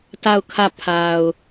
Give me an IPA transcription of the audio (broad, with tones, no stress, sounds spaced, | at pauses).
t a˦˨ ʊ̯ kʰ ä˦˨ pʰ a˨ ʊ̯